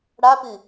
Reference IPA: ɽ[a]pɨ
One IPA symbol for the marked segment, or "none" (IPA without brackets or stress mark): a